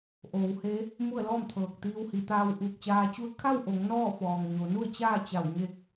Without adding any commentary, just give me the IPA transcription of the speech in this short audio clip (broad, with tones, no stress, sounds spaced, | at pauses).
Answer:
ʔ oː˩˧ w h e˧˥ | m u˥˨ ə̯ l ɔː˥˨ m t̪ʰ ɤː˧˩ k̚ t̪ iː˧ w h i˩˧ t̪ aː˧ w ʔ uː˧˩ k̚ t͡ɕ aː˧ t͡ɕ u˥˨ ə̯ kʰ a˥˨ w ʔ o˩˧ ŋ n ɔː˥˨ f ɔː˩ ŋ ɲ o˩˧ n u˥˨ ə̯ t͡ɕ aː˥˨ t͡ɕ a˧˩ w ɲ e˧ k̚